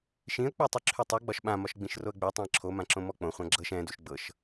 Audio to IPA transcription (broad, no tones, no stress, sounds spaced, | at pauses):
ʃ ĩ ə̯ k͡p u tˤ o ǁʰ y tˤ y ɡ͡b ɒ ʃ ɓ ã m ɒ ʃ ɡ͡b ĩ ʃ r o ə̯ ɡ͡b y tˤ õ ə̯ ǁʰ o m ã ǁ õ m ɔ k͡p õ χʷ ã ɡ͡ǁ ɤ ʃ ɛ̃ d u ʃ ɡ͡b ɤ ʃ